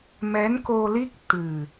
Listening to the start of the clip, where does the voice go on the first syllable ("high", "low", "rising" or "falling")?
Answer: rising